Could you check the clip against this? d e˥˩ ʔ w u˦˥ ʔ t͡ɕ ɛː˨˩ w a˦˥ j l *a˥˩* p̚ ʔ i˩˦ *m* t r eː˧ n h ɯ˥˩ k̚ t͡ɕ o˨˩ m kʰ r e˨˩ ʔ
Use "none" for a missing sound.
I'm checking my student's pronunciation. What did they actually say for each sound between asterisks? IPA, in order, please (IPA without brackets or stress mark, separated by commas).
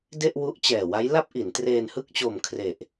a˥˩, n